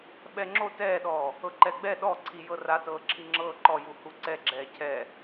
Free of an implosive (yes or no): no